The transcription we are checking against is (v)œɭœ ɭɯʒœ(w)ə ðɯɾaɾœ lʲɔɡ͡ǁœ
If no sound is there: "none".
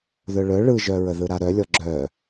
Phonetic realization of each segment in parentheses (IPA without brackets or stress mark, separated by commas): ð, ɹ